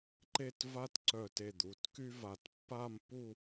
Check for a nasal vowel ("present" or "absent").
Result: absent